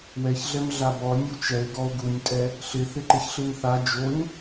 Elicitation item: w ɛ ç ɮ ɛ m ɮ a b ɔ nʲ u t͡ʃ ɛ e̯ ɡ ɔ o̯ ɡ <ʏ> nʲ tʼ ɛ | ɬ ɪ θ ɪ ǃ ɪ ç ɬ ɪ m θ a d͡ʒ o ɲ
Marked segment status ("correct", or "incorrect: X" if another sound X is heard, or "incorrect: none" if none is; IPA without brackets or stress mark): incorrect: u